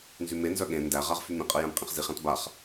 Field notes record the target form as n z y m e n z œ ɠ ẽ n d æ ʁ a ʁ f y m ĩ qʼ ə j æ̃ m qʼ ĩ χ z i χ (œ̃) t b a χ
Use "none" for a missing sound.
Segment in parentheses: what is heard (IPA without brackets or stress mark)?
æ̃